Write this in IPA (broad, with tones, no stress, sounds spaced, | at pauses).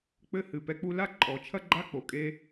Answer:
k͡p ɘ˦ h ɨ˨ p ɛ˧ k͡p u˧ l a˦ ǃʼ ɔ˨˦ t͡ʃʰ ɐ˦ ɡ͡ǃ a˦ k͡p o˨ kʼ e˦